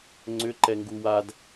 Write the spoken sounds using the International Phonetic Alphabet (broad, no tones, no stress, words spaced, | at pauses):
ŋ͡ǀʏǃɛŋɡu wad